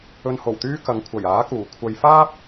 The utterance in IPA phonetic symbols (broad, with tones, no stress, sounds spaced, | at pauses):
ɵ˧ n h o˨˩ w t̪ yː˥ k ɐ˨ ŋ kʷʰ ɐ˨˩ j aː˨˥ k uː˨˩ kʷʰ ɐ˧ j f aː˥ p̚